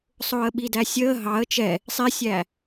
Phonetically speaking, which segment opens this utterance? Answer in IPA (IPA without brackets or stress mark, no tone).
sˤ